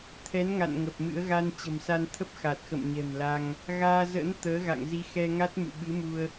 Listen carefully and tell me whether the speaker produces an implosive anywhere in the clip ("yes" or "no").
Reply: yes